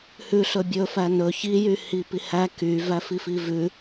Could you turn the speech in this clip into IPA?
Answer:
h ʉ ɬ ɵ bʲ ɵ f æ n ɵ ç i j y h i p i h æ k y v æ f i f i v ʉ

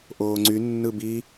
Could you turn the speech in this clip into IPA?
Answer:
ʔ oː ŋ͡ǀ y nː ɯ b i

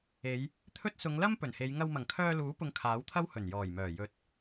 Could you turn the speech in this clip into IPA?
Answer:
e˨˧ j | t̪ʰ ɵ˥ t̚ s ʊ˨˧ ŋ l ɐ˥ m p ɵ˨˩ n h e˨˧ j ŋ ɐ˧ w m ɐ˨˩ ŋ kʰ œː˧ l uː˨˥ p ʊ˧ ŋ kʰ aː˨˥ w t̪ʰ ɐ˥ w h ɵ˨˩ n j ɔː˨˩ j m œː˨˩ j ɵ˨˥ t̚

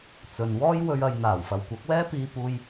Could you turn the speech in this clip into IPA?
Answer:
t͡s ɵ˨ n w ɔː˥ j w ɵ˧ ɥ ɐ˨˧ j n̪ aː˨˩ w f ɐ˨ w kʷ ɐ˨˥ k̚ w ɛː˥ p iː˨ p uː˨ j

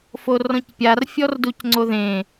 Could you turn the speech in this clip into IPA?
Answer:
f o r ɔ̃ c pʲ a r fʲ ɔ r d u c ŋ͡ǀ o ð ẽ

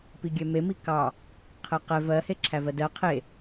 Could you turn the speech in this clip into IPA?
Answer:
p i ɡʲ ɛ m e m i k ɑ | qʰ ɛ q ɛ v ɜ h e ǁʰ æ v ɜ d ɜ qʰ e

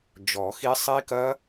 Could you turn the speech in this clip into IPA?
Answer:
d͡ʒ ɔ˨˩˦ x i˦˥ sˤ i˦˥ k ɐ˦˥

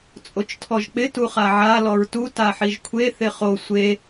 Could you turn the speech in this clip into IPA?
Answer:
t͡sʼ o t͡ʃ tʰ ɔ ʒ k͡p ɪ t u χ a ʕ a l ɔ ɹ t u t a ħ i ʒ kʷʰ e θ ɪ χ o sʷ e

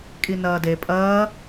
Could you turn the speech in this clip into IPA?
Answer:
kʼ i n ɐː d e pʼ ɐː

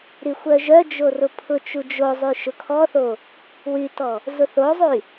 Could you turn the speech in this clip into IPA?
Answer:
ɾ y xʷ œ ʒ œ d͡ʒ o r ʊ pʰ ʊ t͡ʃ u d͡ʒ o zˤ y ʃ ʊ kʰ ɔ θ o | w y t ɔ | z ʊ θ o zˤ y

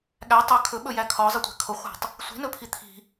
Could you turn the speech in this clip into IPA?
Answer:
ɠ æ tˤ œ kʰ ɵ ɓ ɵ j æ kʰ ɒ zˤ ə tʷ æ̤ kʰ o χʷ æ̤ tˤ | sʷ i̤ n ɵ pʰ i t̪ʰ i̤

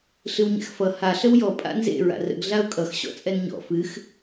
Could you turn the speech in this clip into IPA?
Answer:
ɬ ɨ w ɲ ɛ̰ x f ʌ h a ɬ ə w j ɔ pʼ a̰ n z ḛ ɹ a̰ r ə̰ ɡ ɮ a ʊ̯ kʼ ʌ x ɕ ɔ̰ t͡sʼ ɛ n ɲ ɔ̰ f ɨ x

